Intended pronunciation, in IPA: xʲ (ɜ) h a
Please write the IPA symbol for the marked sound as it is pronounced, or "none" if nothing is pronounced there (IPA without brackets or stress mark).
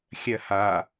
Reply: ɜ